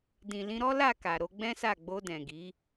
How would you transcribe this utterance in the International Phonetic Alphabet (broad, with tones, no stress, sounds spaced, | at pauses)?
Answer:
d ĩ˨ l ĩ˧ ɾ ɔ˦ l a˦˨ k a˨ ɾ o˧ ɡ͡b ɛ̃˦ s a˦˨ ɡ͡b o˧ d ɛ̃˨ ɡ i˨˦